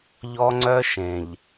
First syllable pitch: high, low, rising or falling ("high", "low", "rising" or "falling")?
high